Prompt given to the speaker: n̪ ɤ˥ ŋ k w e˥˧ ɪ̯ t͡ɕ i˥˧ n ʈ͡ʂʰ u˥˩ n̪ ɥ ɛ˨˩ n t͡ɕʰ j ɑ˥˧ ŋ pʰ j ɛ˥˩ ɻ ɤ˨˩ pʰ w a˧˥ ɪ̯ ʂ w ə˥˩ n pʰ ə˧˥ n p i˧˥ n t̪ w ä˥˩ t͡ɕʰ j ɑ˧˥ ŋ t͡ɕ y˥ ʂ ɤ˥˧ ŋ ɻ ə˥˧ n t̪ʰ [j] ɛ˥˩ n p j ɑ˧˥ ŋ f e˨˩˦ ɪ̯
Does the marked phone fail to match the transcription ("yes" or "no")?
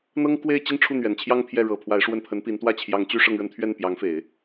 yes